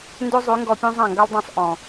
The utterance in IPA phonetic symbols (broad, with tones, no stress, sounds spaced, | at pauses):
n d ø˦ zˤ ʉ˨˦ ŋ ɡ ɔ˧ pʲ ũ˦ zˤ ã˦˨ ŋ ɡ a˦ lˠ dˤ ã˦˨ sˤ ʔ ɔ̃˨